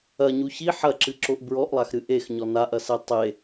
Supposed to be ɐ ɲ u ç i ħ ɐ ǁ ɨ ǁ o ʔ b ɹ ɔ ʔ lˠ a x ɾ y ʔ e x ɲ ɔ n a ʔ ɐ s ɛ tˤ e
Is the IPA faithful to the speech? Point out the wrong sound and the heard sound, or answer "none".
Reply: y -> ɨ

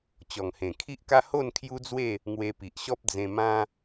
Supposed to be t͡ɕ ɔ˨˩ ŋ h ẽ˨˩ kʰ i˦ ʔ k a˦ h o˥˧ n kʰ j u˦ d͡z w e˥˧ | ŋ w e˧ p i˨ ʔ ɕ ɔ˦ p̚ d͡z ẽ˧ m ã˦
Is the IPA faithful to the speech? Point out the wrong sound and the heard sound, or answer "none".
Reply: none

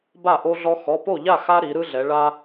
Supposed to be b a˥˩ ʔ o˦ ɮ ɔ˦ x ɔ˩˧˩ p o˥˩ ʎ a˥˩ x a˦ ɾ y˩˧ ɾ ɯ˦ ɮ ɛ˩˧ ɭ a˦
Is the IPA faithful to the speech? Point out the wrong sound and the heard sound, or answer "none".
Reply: y˩˧ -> i˩˧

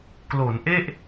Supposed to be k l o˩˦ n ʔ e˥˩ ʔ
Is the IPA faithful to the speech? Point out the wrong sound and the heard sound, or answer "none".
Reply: none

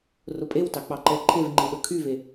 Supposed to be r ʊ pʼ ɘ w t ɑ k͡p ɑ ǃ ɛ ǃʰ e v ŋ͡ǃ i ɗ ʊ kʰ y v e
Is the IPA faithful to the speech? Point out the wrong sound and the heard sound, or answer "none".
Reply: ɘ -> e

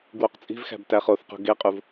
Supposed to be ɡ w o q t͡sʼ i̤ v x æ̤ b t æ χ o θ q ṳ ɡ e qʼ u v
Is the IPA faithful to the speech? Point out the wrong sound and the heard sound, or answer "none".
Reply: none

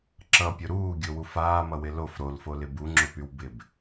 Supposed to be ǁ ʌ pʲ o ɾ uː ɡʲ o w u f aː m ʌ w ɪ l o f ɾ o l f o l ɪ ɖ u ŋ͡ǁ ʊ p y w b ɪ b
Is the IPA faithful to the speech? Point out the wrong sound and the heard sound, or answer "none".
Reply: ɖ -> b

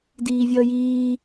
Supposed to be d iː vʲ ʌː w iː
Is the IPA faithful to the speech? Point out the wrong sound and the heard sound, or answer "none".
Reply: w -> j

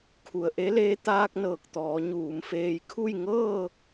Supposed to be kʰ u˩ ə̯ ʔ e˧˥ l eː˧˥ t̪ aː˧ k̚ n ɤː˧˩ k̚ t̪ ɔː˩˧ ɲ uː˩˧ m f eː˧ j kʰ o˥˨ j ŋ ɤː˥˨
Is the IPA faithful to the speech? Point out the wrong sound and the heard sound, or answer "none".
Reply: o˥˨ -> u˥˨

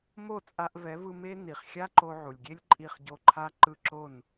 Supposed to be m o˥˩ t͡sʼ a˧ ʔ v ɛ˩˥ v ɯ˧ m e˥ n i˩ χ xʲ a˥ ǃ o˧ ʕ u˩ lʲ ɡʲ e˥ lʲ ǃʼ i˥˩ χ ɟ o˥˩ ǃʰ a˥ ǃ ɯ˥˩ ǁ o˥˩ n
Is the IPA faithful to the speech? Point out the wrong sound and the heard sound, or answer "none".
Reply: none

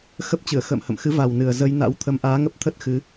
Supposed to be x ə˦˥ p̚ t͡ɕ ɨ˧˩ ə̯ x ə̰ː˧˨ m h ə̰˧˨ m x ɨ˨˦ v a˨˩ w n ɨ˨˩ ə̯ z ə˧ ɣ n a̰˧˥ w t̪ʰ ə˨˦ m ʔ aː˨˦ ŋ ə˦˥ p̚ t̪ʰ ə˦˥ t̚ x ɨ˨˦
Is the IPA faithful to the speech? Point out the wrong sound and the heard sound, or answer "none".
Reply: ɣ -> j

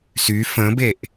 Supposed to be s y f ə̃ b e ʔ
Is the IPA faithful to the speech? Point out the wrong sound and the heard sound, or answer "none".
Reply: none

